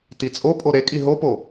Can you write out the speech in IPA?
t i t͡sʼ o pʼ o ɾ e kʼ i ɦ o p o

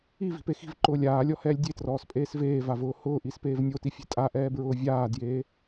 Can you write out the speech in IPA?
i v i̤ p e x i̤ v ǃ ʊː lʲ aː lʲ ɔ h ɛː lʲ dʲ e t r ɔː s pʼ eː s v eː v a v ʊː h ʊː ʔ i s p eː v nʲ o t i fʲ e̤ tʼ a ʔ ɛː b ɹ ʊː vʲ aː d j eː

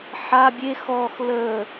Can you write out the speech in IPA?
ħ a bʲ e x ɔ x l ə

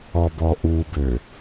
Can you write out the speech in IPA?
ɔ b ɔ ʔ u b ø

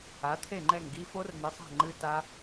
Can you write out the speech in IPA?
a˨˥ t̪ʰ e˥˨ ŋ͡ǃ ɛ˥˨ ŋ ɡ i˦˥ f o˦˥ r n ɛ˨˥ sˤ a̤˥˨ ŋ͡ǃ ɨ˦˥ t a˦˥

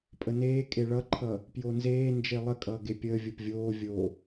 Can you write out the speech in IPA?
pʼ ə n eː kʼ e ɭ ʌ ǃʰ ʌː | p j o n z eː n d͡ʒ e lˠ ə kʼ ʌː ɡ e pʲ əː vʲ o p vʲ oː vʲ oː

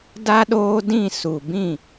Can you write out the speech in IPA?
d a˦ ɗ oː˦ d ĩ˦˨ s u˨ b ĩ˦˨

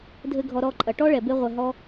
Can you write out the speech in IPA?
dʱ ɘ˧ ɡʱ ɔ˧ ɾ ɔ˦˨ ǃʼ ɐ˨ ʈ ɔ˦ ɭ ɛ˨ b e˦ ʁʷ ɛ˧ ɦ ɔ˦

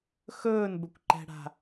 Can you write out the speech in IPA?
x ɵː n b ɵ kʷ ǃ ɛ̤ ɽ a̤

